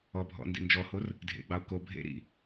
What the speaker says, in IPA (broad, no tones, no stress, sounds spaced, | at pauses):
ɔ bʱ ɔ̰ n d ḭ n d͡ʒ ɔ h o r | dʱ ḛ ɡ͡b ɑ o̯ k o bʱ ḛ ɾ ḭ